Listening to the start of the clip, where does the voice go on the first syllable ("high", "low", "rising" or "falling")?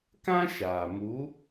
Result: high